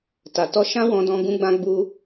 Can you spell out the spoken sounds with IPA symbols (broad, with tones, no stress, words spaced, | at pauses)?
ta˨tɔ˧ ʃã˦wɔ̃˧dɔ̃˧ ɡũ˧ɡ͡bã˧ ɡ͡bu˦